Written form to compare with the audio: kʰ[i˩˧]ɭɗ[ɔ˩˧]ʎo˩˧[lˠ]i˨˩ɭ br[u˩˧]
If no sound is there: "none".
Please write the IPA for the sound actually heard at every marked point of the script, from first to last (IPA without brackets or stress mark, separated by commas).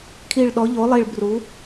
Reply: i˨˩, ɔ˩˧, lˠ, u˩˧